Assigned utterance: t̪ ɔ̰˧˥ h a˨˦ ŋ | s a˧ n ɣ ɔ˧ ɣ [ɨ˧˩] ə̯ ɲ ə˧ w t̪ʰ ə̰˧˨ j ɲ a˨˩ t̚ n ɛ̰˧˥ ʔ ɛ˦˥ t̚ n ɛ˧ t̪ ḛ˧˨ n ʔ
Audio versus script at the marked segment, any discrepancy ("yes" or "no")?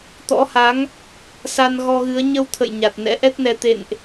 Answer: yes